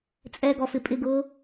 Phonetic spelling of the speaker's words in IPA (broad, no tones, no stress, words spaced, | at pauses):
t͡sʼɛɡɔfɪ pʼɪɡʊː